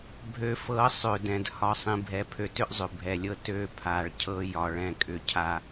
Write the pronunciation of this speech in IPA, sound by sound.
bʱ ø˨ f ɤ˨˦ sˤ ø˨ d ɛ̃˨ d h ɒ˨ sˤ ĩ˨ bʱ ɛ˨ pʰ ø˨ t ʏ˦ ʔ zˤ ʏ˨ bʱ ɛ˨ lʲ ɤ˦ t ø˦˨ pʰ a˨ ɭ cʰ ɤ˦ j ɒ˦ ɭ ɛ̃˦ kʼ ʏ˦ cʰ a˦

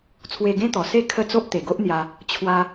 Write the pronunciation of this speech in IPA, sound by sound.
t͡sʰ w e˧ ɡ ẽ˦ t̪ ɔ˨˩ s e˥˧ kʰ ə˥˧ t͡s o˦ ʔ t̪ e˨˩ ɡ o˦ ʔ n̪ j a˧ | t͡ɕʰ w a˧

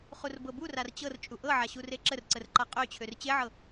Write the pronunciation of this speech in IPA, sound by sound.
χ u r b ɤ b u r a r t͡ɕ ɤ r t͡ʃʼ u ʔ ɤ ʕ a ɕ u r e ǁ ə r ǀ ə r ǃ a qʼ ø t͡ɕʰ ø r t͡ɕ e ʕ ɤ

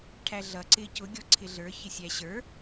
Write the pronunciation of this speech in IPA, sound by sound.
ʈʰ æ ɮ ʌ ǀ ɪː c ʊ ɡʲ ɔ ǀʰ ɪ ɮ ə˞ ç ɪ sʲ æ ɕ ə˞

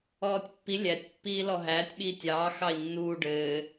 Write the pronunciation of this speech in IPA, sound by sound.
ɔː tʲ pː i lʲ æ tʲ pː iː l ɔ ɦ æː tʲ ɓ iː tʲ ɑː x ɑ i̯ nː uː ɖ ɘː

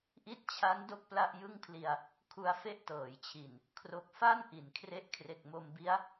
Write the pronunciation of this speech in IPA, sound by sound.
ʔ i˦˥ t̚ t͡ɕʰ a˦˥ n d o˥˩ k̚ p l a˥˩ ʔ j ɯ˥˩ ŋ pʰ l i˧ a̯ | kʰ u˧ a̯ f e˦˥ ʔ t ɤː˩˦ j t͡ɕʰ i˨˩ n | kʰ r o˨˩ k̚ f a˥˩ n ʔ i˩˦ n kʰ r e˦˥ ʔ kʰ r e˨˩ k̚ m o˧ m b i˦˥ a̯

